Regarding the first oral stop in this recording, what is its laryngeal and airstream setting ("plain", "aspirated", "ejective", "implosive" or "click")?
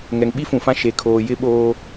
implosive